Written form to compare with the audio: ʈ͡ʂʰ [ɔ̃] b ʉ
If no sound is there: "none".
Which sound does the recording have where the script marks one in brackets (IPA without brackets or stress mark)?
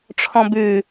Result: ɔ̃